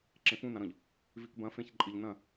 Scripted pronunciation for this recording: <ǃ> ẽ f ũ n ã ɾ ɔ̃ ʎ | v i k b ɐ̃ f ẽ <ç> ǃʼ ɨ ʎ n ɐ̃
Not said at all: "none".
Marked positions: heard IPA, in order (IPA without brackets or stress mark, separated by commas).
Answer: ǁ, ç